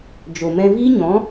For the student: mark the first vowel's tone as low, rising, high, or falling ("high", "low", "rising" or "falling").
low